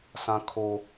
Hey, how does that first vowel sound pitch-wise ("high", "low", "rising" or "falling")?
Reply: high